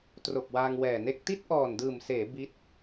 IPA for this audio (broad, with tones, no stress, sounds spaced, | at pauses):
t r o˨˩ k̚ w aː˧ ŋ w ɛː˨˩ n e˥˩ k̚ t i˥˩ t̚ ʔ ɔː˨˩ n d ɯː˨˩ m s eː˩˦ b i˦˥ t̚